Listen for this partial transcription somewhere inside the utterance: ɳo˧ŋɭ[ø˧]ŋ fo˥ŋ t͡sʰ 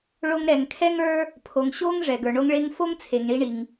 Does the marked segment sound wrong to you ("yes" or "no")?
yes